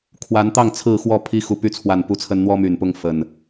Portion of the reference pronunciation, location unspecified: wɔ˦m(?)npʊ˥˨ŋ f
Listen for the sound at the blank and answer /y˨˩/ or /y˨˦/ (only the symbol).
y˨˩